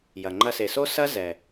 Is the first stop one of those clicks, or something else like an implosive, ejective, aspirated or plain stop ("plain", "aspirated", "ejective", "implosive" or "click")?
click